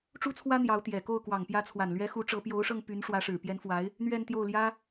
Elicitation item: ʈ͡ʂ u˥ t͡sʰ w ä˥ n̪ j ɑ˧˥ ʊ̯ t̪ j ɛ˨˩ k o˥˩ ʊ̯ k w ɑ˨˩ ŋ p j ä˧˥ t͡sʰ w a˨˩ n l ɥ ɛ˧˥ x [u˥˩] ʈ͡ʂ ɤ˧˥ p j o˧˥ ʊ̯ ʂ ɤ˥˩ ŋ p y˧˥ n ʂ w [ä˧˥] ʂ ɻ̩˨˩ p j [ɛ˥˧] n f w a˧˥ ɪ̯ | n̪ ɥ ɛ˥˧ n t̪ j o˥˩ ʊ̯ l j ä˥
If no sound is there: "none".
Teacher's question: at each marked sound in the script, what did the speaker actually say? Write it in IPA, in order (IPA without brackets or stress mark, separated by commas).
u˧˥, ä˧˥, ɛ˧˥